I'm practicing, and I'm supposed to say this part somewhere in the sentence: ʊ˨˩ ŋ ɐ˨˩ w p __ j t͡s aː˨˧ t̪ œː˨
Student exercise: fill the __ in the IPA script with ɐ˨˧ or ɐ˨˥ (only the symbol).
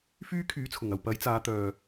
ɐ˨˥